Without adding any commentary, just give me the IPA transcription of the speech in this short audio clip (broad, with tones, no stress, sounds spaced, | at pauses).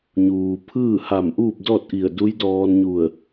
ɲ uː˩ pʰ ɯː˥˨ h a˧˩ m ʔ uː˥˨ p̚ d ɔː˥˨ t̚ ʔ i˧˩ ə̯ d u˧˥ j d ɔː˧ n ɲ u˧˩ ə̯